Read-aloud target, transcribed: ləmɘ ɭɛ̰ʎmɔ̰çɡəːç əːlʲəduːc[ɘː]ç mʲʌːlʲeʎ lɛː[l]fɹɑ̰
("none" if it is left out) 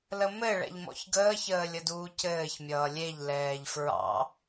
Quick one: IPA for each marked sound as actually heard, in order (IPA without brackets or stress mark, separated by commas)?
ɘː, ʎ